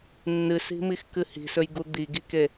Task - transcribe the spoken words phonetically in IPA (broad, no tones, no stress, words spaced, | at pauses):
nːɨsi̤mix kɨhi̤sɵjɡu d̪iɡike